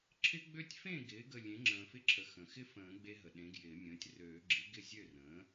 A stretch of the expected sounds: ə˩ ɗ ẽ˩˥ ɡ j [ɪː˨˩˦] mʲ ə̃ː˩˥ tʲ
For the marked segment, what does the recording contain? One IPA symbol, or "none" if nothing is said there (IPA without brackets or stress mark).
ɪː˨˩˦